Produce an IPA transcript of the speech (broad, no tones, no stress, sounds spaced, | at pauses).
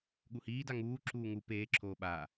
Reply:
ɠ u h iː d a ŋ uː ǁ uː ŋ u p eː ǁʰ oː ɓ aː